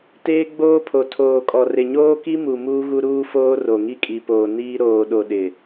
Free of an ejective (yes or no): no